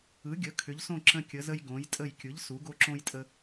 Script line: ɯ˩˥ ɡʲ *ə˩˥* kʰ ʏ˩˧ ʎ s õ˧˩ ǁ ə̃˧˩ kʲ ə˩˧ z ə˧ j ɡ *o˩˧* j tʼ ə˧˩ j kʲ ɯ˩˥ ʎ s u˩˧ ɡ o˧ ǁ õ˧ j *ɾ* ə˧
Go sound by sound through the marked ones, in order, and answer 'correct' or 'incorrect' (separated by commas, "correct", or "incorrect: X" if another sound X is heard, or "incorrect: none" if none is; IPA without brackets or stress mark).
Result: correct, incorrect: õ˩˧, incorrect: tʼ